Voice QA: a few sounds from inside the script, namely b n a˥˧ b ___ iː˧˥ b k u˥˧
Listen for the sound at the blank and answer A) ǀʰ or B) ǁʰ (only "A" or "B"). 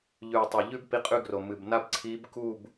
A